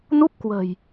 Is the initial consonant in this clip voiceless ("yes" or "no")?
no